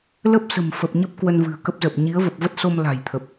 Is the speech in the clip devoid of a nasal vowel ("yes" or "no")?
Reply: yes